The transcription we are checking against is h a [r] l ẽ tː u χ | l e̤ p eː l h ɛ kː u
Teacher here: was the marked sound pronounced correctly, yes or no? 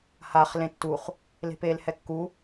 no